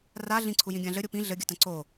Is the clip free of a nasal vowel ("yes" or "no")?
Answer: no